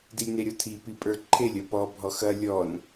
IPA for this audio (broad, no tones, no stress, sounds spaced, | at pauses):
d i lʲ n e ɾʲ ɔ tʰ i p i pʼ ə˞ ǃʰ e lʲ ɐ p ɔ bʱ ɔ x ɐ lʲ ɔ n